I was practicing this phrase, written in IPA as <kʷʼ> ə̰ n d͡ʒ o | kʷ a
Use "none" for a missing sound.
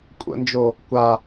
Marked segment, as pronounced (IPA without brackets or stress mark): kʷʼ